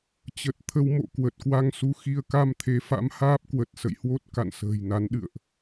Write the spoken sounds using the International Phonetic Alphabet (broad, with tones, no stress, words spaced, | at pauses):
t͡ɕə˨˩t̚ t̪ʰə˧wmo̰˧˨ kwə˨˩t̚kwa˧ŋsu˨˦xi˧ə̯ ka˧mt̪ʰe˨˦fa̰˧˥m haː˦˥p̚kwə˨˩t̚sə̰˧˨jhwo˦˥t̚ ka̰˧˨nsə̤ː˨˩jna˨˦nɗɨ̰˧˨ə̯ʔ